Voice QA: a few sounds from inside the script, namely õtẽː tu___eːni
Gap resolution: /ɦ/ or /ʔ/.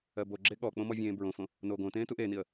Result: ʔ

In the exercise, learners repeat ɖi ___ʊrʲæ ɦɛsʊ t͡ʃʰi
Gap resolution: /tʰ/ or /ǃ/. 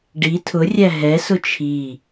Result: tʰ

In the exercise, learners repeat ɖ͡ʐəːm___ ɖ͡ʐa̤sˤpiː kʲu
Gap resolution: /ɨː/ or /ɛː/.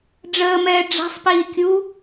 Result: ɛː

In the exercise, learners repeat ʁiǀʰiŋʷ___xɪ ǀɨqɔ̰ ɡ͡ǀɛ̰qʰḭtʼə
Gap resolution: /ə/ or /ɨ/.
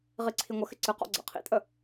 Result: ə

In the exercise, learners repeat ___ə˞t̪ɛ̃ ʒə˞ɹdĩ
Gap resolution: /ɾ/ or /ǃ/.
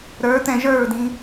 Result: ɾ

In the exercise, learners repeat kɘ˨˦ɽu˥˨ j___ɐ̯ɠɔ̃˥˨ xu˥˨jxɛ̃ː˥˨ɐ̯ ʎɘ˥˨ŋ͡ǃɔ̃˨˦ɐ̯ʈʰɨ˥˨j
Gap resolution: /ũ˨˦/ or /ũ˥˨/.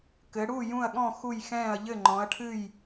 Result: ũ˥˨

